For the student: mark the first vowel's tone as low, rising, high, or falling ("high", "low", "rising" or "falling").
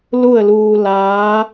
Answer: falling